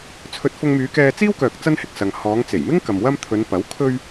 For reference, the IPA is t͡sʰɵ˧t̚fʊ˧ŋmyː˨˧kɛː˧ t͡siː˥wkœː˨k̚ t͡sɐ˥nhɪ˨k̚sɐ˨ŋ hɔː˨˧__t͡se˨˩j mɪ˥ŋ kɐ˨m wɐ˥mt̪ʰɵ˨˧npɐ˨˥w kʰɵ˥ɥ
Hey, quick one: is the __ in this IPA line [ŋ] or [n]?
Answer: ŋ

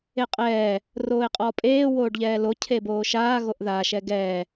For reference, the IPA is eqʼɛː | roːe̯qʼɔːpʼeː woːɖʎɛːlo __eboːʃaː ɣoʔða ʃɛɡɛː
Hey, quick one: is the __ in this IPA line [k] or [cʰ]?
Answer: cʰ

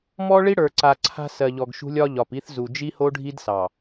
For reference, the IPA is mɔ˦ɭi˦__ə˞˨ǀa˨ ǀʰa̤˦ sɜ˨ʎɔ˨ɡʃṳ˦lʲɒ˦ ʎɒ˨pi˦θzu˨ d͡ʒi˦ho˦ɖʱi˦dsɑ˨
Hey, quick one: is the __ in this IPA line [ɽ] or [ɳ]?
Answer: ɽ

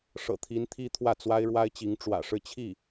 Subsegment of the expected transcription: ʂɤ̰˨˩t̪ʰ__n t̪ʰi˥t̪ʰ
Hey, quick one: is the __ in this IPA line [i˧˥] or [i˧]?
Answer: i˧˥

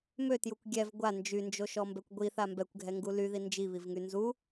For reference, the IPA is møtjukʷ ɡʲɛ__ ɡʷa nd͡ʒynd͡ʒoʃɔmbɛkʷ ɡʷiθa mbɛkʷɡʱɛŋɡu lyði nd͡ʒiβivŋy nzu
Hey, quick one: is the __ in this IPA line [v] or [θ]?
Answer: v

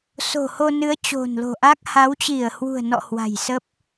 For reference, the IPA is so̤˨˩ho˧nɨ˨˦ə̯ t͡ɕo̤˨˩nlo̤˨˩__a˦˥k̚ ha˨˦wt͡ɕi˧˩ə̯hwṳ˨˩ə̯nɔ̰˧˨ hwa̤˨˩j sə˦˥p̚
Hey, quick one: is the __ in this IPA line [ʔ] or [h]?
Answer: ʔ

